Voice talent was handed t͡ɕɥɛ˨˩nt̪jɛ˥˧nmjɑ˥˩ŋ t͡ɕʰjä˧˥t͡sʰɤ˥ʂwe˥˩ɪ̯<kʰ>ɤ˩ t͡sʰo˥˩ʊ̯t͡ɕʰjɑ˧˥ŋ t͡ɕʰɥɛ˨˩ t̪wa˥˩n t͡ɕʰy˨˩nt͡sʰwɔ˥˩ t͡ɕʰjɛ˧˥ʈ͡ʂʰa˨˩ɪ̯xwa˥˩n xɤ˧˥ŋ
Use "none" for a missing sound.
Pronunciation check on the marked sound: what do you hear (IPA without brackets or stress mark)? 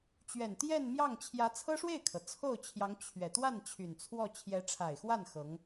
kʰ